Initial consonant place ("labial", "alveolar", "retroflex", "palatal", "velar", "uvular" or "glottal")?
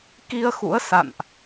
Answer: velar